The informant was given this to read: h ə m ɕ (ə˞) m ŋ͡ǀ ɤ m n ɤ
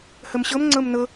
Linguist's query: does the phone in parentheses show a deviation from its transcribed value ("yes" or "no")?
yes